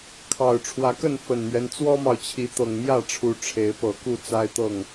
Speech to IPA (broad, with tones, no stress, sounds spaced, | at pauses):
kʰ ɑ˨˩ ʊ̯ ʈ͡ʂʰ w ä˨˦ k ə˥˨ n f ə˨˩ n m ɥ ɛ˦ n t͡s w ɔ˦ m ɑ˨ ʊ̯ t͡ɕʰ i˨˦ t̪ ɤ˨˩ ŋ m j ä˥˨ ʈ͡ʂʰ u˨˦ ʈ͡ʂʰ e˨˦ ɪ̯ p ɤ˨˩ k u˥˨ t͡s a˦ ɪ̯ t̪ ɤ˥˨ ŋ